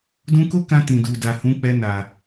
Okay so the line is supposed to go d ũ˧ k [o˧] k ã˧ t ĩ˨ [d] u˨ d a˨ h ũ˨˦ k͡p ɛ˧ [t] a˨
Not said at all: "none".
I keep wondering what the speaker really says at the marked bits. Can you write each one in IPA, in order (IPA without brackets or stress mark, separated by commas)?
o˦, d, n